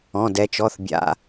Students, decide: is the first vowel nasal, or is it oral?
nasal